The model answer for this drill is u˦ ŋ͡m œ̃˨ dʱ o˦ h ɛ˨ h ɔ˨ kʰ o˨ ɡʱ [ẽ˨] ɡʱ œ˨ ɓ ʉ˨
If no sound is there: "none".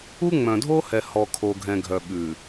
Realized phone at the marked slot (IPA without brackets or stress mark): ɛ̃˨